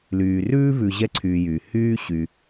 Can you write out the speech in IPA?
lyː˨ rʉː˥vʉ˨ ʑɛ˦ǀʰyː˨jyː˩ hyː˥ɕy˨

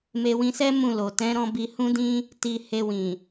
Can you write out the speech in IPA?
me˧wĩ˧sɛ˦ mũ˦˨lo˨ tɛ̃˨˦ɾɔ̃˧ bi˧hũ˦dĩ˦ | ti˧he˧wĩ˨

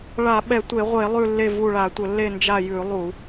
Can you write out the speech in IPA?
ɭa˧˩˧ɓɛ˧˩˧tʷe˧˩˧ʁʷe˧˩˧ lˠʉ˦˨lːe˦˨ vu˦˨ɭa˧˩˧tʷə˧˩˧ lːe˦˨nd͡ʒa˦˨jʉ˧˩˧lˠu˧˩˧

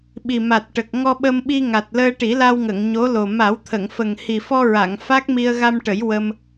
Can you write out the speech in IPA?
ɓi˨˩ma˨˩t̚ʈə˨˩k̚ ŋɔ˧ɓə˧mɓi˧ ŋa˨˩t̚ləː˧ʈi˨˩˦ la˧wŋə˨˩˨ŋ ɲo˧˥lo˨˩ ma˨˩˦wt̪ʰə˨˩˨ŋ fə˨˩ŋhi˨˩fɔ˧ɹa˨˩˨ŋ fa˦˥k̚mi˧ə̯ ɣa˧mʈə˨˩˦j wə˧m

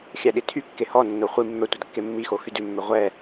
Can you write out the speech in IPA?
xʲæɗitʰykːe hɔnːo χʷi mːœ tʷædkːemːixo xydʉmːø ʁʷɛ

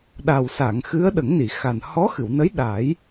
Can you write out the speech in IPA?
ɗa˨˩wsa˨˩˨ŋ xɨ˧˥ə̯ɗə˨˩˦ŋni˨˩˨xa˨˩n hɔ˧˥xɨ˨˩˨wnə˧˥j ɗa˨˩˦j

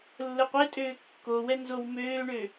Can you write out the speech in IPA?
lːəqʷetʼøː kːowɛ nzowmøːɳø

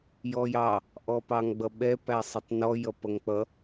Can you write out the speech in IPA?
jɔjɑ | ʔɔpɑŋɡ͡bʌɓɛ pæsˤɪtˤnɔ jʌpʌŋk͡pʌ

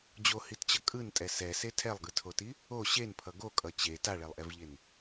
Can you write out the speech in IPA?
d͡ʑohitt͡ɕʌ kʼɯntʼɛ sɛse tʰɛlˠɡɯtʰoti | o ɕenpʰʌ ɡokʼʌ t͡ɕe taɭɛlˠʔɛvʎen

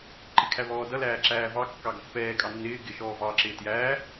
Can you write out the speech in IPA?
ǃɪkʰæβɔːdʌ læːǁæːvɑ kːɑɡʌpːɛː kʼɑnːɪː ɡɪ ʃɔːvɑ ǁɪːtjæː

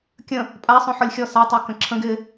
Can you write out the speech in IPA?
kʲə̃ | pʼasˤõħɔlʲ xʲɔsatˤə˞ kə̃ǁʰə̃ɡ ɪ

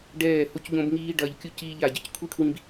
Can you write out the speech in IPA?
ɖɛː˦˨ ho˦cʎõ˦b ŋiː˦ ɖɐː˧ʎkʲu˦ ciː˦ʎa˦˨ɟɐ˦c kʷʰi˦kʰwĩ˧b

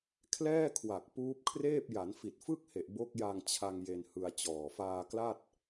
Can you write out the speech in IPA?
kʰlɛː˥˩kʰwa˨˩k̚ puː˦˥p̚kʰreː˥˩p̚ ja˩˦nfi˨˩t̚fɯ˥˩k̚he˨˩ʔ bo˦˥k̚ja˧ŋ t͡ɕʰa˧ŋ je˧nhɯ˧a̯t͡ɕɔː˨˩ faː˧kla˥˩t̚

